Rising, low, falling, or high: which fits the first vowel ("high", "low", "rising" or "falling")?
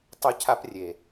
high